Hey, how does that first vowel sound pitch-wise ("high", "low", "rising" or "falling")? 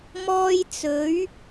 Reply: high